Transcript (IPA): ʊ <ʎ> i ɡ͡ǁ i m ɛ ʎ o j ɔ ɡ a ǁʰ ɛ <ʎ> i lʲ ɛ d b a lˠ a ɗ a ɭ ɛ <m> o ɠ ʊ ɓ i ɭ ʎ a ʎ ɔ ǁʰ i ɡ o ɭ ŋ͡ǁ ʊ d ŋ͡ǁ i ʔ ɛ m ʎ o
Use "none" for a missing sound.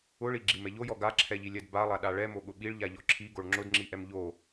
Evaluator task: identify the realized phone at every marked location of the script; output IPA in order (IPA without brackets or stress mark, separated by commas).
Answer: ɭ, ʎ, m